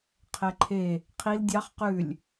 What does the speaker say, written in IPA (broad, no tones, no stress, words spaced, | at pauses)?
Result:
qʰɛǃʰe | qʰil dʲɑχ qʉlʲ